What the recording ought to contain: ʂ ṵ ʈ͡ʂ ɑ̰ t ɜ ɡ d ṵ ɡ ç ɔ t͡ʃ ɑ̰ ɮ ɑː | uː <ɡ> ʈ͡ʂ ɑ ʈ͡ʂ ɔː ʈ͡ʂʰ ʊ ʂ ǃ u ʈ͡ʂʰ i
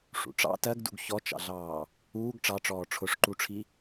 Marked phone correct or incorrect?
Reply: correct